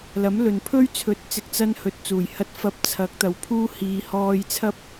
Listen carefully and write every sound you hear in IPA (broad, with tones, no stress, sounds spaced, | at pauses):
l ɐ˨˥ m l ɵ˨ n pʰ ɵ˥ ɥ t͡sʰ ɵ˨˥ t̚ t͡s ɪ˨ k̚ t͡s ɐ˥ n h ɵ˨˥ t̚ t͡s uː˨˩ j h ɐ˧ t̚ f ɐ˧ p̚ t͡sʰ ɐ˨˥ k̚ t̪ ɐ˨ w pʰ uː˥ h iː˨˧ h ɔː˧ j t͡sʰ ɐ˥ p̚